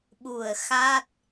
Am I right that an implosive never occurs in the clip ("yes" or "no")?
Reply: no